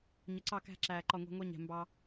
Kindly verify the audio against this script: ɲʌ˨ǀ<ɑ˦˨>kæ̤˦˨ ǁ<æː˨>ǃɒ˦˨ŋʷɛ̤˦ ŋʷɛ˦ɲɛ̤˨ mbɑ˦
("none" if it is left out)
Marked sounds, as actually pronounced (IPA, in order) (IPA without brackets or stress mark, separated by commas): ɑ˦˨, æː˨